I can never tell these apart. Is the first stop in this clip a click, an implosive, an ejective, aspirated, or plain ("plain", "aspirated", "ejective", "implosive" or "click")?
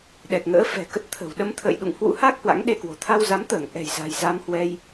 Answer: implosive